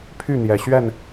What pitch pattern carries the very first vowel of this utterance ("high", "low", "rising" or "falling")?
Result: falling